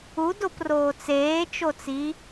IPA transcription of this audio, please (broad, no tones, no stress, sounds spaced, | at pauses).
u d o p r oː t͡s eː t͡ʃ o t͡s i